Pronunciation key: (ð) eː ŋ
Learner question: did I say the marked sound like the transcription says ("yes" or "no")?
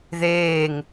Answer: yes